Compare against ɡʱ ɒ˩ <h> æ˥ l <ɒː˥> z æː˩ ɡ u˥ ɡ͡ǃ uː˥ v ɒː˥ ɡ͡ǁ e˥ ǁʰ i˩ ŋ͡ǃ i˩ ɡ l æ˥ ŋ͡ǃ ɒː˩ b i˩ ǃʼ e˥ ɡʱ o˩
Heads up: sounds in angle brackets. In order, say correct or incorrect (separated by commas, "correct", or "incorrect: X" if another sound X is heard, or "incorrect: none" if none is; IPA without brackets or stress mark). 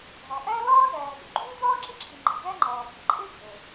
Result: incorrect: ʔ, correct